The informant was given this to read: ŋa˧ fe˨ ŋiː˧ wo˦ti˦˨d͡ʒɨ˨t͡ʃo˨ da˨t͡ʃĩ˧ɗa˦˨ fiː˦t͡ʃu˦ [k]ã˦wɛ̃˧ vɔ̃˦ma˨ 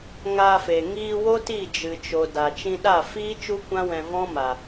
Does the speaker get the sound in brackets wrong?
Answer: yes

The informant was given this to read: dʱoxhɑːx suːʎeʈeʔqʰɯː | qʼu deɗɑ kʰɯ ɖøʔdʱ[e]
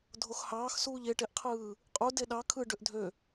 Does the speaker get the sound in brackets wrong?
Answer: yes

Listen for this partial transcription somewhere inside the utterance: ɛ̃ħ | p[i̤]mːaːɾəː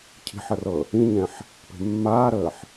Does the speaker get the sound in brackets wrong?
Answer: yes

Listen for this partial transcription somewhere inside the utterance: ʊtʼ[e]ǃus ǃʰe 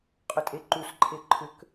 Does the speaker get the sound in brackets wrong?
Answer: no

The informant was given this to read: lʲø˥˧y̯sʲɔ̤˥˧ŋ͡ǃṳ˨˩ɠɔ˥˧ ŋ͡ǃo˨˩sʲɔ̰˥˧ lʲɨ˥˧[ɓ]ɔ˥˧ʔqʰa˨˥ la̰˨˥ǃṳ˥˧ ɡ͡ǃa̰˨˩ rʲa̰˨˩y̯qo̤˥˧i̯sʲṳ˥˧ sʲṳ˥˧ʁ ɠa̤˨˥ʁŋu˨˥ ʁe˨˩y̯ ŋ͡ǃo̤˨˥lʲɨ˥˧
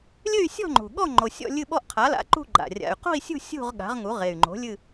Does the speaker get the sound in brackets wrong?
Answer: no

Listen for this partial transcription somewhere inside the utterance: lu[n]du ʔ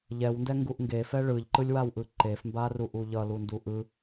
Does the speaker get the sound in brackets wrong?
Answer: no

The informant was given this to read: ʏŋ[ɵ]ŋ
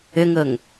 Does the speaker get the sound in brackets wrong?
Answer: no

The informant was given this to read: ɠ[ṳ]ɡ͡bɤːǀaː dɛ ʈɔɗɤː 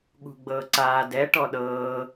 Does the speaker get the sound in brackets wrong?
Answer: no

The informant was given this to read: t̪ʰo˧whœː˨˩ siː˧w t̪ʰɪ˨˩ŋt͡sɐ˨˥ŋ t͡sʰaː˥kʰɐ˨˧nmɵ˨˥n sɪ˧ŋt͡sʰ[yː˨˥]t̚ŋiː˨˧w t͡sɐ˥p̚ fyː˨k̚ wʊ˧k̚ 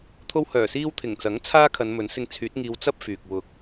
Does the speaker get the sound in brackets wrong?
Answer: no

